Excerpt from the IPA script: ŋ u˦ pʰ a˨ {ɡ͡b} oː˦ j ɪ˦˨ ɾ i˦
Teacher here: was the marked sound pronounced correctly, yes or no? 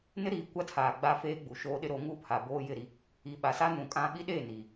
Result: no